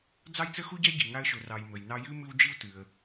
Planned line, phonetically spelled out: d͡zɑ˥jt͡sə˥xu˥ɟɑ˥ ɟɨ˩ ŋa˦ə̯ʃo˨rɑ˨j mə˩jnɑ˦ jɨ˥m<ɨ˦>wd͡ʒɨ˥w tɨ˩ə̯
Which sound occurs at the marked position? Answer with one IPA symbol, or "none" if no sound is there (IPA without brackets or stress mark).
ɨ˦